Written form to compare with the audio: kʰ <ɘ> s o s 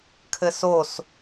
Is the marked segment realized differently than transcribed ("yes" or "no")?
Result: no